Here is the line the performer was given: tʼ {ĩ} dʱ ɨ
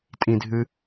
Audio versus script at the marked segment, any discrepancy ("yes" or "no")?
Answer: no